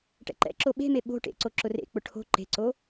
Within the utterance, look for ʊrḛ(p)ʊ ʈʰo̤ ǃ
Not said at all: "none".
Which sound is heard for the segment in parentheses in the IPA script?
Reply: k͡p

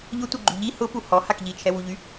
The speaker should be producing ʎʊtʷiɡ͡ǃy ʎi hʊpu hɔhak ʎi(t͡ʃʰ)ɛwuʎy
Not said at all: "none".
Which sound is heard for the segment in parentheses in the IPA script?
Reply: t͡ʃʰ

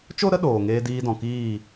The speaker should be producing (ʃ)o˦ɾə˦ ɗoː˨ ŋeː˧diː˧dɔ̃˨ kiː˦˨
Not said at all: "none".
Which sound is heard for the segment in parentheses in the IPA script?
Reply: t͡ʃ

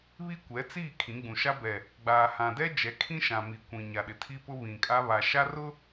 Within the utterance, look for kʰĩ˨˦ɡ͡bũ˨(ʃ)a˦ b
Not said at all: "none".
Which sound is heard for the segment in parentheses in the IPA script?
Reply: ʃ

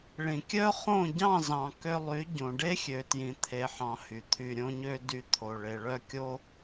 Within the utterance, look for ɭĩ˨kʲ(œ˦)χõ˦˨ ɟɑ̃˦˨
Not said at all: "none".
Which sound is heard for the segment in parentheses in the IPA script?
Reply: œ˦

